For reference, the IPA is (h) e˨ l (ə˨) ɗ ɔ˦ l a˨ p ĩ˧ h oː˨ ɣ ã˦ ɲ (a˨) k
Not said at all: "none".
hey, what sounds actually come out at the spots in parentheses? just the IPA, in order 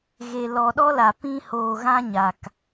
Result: ɣ, ɔ˨, a˨

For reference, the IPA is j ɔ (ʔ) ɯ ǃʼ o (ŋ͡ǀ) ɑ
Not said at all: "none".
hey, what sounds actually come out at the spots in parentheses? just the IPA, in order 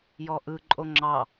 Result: ʔ, ŋ͡ǁ

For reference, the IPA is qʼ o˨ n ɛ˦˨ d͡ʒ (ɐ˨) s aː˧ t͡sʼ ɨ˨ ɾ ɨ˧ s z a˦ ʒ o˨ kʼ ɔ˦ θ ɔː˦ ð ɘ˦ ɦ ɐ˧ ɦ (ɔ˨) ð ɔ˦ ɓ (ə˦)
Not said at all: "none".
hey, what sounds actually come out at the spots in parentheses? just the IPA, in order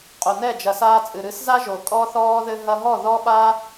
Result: ɐ˨, ɔ˦˨, a˦

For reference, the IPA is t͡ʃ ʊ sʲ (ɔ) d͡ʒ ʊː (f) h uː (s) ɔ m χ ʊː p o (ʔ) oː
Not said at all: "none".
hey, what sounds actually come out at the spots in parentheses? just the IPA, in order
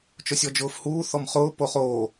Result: ɔ, f, θ, χ

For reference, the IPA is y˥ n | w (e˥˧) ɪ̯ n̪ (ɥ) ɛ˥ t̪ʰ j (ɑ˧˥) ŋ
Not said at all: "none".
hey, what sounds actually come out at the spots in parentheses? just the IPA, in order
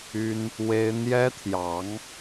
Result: e˥, j, ɑ˧˥

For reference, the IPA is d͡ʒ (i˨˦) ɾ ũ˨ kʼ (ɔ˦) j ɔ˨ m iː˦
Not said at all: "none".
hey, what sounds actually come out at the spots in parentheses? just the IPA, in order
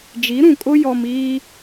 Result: i˨˦, ʊ˦

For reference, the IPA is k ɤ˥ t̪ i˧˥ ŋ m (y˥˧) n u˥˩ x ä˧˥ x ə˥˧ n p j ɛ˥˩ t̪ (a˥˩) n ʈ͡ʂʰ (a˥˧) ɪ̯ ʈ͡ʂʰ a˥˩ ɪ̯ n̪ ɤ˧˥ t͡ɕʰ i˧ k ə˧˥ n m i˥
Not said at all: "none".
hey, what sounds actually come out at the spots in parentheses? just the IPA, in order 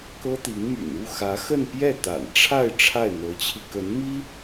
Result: y̰˨˩, a̰˨˩, a˥˧

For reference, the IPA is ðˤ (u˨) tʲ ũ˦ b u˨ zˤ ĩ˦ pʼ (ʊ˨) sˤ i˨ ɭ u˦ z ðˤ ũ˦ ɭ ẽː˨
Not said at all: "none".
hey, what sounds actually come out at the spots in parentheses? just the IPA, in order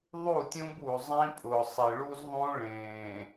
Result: u˦˨, ʊ˨

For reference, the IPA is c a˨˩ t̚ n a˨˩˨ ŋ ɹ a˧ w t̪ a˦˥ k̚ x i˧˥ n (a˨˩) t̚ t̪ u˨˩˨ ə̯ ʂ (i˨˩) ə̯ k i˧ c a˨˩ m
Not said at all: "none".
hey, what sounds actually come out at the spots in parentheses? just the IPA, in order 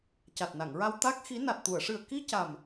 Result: a˨˩, ɨ˨˩

